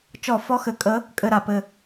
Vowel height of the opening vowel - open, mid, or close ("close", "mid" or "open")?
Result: mid